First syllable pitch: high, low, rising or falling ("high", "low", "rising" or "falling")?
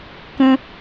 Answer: high